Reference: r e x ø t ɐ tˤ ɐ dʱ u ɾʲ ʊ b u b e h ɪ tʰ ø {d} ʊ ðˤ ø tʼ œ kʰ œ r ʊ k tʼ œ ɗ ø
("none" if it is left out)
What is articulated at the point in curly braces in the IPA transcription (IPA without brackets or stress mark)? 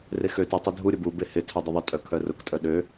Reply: dˤ